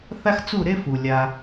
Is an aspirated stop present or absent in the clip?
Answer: absent